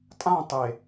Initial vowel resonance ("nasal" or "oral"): nasal